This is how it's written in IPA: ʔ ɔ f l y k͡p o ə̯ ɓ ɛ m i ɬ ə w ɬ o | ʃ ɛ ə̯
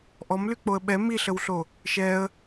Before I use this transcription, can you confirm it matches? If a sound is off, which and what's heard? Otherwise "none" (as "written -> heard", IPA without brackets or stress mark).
f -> m